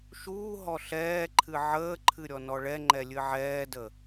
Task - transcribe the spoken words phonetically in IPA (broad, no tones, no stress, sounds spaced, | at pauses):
ʃ uː ɦ ɔ ɬ ɛː ǃʰ ɨ ʕ əː ǃʰ ɨ ɾʲ ɔ n ɔ ɭ ɛ ŋ͡ǃ ɛ lʲ ɨ ʕ ɛː d ə